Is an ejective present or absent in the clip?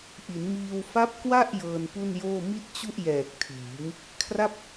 absent